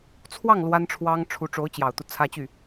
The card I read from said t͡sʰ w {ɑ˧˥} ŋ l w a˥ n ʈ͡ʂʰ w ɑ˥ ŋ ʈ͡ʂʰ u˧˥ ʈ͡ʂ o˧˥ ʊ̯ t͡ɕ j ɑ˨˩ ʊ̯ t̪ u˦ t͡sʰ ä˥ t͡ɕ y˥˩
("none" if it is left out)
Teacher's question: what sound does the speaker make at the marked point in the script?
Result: ɑ˥˩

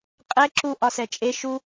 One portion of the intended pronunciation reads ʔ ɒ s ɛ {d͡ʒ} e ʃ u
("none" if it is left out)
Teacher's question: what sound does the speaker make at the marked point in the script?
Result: t͡ʃʼ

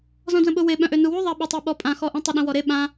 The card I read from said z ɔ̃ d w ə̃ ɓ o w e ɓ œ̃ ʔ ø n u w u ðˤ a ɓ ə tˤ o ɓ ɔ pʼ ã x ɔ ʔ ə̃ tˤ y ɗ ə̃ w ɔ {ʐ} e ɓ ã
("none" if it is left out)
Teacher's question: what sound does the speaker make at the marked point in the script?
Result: ɾ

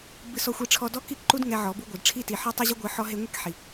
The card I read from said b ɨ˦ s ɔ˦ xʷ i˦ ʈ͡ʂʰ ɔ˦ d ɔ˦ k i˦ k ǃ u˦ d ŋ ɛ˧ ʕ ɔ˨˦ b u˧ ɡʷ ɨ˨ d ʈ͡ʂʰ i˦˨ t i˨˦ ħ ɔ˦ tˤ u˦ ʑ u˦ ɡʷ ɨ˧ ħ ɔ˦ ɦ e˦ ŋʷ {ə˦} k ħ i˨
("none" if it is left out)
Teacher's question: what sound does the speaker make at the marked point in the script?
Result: ɛ˦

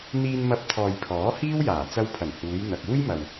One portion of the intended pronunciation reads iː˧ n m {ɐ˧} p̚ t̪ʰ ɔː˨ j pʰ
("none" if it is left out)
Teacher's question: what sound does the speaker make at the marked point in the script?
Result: ɐ˧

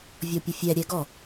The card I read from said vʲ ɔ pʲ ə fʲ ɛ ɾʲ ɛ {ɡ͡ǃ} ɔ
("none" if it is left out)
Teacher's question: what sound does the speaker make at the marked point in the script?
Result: ɡ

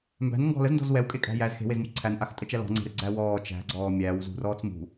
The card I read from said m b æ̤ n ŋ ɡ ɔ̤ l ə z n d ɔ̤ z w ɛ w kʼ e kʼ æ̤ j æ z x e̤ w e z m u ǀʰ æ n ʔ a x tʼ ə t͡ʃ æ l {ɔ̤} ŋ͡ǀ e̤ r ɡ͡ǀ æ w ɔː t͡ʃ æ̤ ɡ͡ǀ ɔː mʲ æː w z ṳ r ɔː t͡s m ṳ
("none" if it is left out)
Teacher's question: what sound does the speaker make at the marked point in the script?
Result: ɔ̤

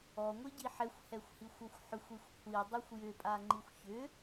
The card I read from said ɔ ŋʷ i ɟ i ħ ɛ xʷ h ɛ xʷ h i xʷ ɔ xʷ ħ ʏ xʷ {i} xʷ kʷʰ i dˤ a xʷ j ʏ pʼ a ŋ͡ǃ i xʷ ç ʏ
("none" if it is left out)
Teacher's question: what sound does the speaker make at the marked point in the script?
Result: i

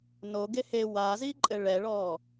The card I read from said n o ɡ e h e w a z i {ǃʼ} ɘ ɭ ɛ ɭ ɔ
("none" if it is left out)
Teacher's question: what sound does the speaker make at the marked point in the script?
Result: ǃʼ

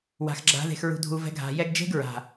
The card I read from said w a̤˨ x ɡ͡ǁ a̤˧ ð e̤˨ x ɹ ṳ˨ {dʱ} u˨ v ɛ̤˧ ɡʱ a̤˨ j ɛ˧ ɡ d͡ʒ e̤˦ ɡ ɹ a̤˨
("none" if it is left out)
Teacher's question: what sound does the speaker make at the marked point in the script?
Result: dʱ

